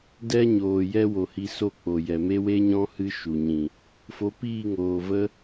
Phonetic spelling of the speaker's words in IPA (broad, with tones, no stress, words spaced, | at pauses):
dɛ˦ɲoː˨ jɛ˦wo˨hi˧so˦˨ k͡po˨jɛ˨me˦ we˦ɲɔ̃˦ hɨ˦ʃu˨ɲĩ˨ | fo˨˦piː˦˨ŋoː˨və˦